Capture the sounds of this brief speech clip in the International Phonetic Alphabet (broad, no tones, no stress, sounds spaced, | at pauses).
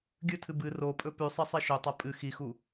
ɡʲ ɨ tʰ ɨ b ɨ r o pʼ ɵ p ʉ sˤ i sˤ i ʃ ɵ tˤ a pʼ ɨ x i x u